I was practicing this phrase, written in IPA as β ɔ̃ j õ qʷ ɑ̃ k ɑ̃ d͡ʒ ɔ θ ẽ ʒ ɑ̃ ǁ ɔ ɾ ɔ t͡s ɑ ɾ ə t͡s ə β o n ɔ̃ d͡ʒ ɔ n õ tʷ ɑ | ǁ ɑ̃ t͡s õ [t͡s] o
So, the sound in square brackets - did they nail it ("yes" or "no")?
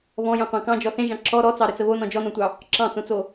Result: yes